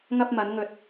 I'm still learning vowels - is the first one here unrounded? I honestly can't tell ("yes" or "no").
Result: yes